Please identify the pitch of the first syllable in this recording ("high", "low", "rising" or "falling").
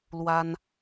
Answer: high